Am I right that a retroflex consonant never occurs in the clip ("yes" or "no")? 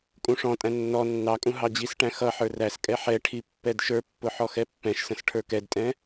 no